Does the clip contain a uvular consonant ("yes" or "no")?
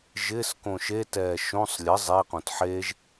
yes